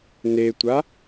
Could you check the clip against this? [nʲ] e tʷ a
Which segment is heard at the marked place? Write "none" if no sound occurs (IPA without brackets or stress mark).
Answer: n